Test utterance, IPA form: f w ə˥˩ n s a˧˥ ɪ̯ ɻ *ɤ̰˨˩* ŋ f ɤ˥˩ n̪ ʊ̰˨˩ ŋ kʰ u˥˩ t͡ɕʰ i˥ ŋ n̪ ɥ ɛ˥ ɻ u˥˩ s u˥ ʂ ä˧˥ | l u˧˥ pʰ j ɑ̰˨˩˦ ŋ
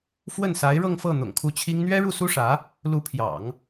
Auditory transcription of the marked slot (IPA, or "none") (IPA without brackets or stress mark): ɤ˥˧